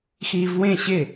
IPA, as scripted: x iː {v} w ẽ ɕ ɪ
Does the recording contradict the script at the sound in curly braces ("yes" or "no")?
no